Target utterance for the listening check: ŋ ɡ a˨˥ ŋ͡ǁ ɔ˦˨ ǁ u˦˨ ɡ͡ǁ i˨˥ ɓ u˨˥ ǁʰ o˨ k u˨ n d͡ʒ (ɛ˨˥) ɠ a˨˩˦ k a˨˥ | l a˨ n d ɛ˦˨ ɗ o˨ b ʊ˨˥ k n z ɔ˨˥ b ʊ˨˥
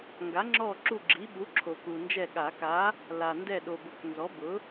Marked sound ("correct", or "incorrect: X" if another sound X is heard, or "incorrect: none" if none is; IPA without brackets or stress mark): incorrect: ɛ˦˨